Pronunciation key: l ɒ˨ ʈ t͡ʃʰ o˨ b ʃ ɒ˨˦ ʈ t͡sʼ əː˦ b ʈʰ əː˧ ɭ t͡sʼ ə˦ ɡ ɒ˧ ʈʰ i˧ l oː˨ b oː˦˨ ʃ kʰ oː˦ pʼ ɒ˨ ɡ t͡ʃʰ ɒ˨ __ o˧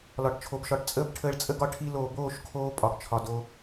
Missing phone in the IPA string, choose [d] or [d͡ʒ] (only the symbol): d